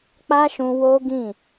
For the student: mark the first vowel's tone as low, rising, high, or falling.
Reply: high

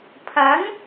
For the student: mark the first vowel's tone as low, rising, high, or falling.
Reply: rising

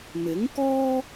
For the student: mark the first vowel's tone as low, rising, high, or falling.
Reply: rising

